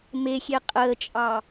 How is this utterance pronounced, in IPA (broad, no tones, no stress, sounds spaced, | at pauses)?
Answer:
m e xʲ e qʼ əː t͡ʃʼ ɑ